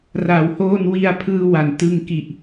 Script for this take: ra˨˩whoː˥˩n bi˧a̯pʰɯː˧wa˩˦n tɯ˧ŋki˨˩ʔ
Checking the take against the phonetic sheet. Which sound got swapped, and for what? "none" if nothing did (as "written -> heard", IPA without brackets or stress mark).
b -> w